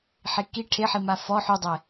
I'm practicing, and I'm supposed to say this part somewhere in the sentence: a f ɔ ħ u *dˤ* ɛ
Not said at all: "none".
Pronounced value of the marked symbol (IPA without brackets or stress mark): dˤ